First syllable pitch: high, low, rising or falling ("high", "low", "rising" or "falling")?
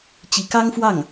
rising